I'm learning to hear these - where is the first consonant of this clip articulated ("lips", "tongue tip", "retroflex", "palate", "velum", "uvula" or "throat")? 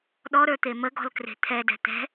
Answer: tongue tip